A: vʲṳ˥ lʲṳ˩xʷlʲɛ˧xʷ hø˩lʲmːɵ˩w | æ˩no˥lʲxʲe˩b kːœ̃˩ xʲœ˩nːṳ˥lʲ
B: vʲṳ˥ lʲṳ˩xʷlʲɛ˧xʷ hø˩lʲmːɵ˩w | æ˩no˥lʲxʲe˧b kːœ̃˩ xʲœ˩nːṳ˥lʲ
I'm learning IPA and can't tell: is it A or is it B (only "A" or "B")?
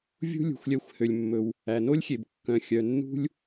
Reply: A